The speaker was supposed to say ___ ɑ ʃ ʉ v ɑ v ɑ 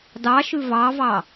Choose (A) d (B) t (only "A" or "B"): A